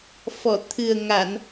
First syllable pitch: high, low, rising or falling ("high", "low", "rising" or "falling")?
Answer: low